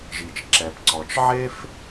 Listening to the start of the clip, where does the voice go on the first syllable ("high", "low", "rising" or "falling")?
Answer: low